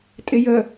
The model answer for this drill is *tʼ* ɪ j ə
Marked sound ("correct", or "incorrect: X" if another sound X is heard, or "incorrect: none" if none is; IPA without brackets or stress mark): correct